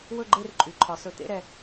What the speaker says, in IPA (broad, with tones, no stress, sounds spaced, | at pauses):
w ɵ˥˧ ɡ͡ǃ e˥˧ r ǃʼ y˩˧ ǃʰ ɒ˩˧ s ɵ˨˩ t̪ ḛ˥˧ ɾ ɛ˨˩